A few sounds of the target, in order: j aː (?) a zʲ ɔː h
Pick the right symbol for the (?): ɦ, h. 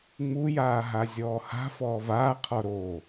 ɦ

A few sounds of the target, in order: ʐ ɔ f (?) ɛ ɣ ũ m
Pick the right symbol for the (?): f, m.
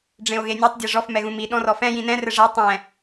m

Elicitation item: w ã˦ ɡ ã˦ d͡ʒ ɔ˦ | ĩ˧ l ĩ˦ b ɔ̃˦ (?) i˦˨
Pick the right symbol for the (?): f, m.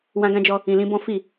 f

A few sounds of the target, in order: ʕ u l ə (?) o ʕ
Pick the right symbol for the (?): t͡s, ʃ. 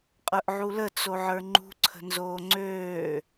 t͡s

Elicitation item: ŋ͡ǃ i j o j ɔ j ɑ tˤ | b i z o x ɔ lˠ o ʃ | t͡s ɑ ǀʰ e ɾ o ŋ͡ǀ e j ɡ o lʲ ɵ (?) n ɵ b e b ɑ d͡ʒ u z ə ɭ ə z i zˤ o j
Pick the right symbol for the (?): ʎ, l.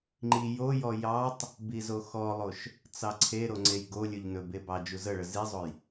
ʎ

